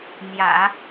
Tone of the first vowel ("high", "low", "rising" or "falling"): low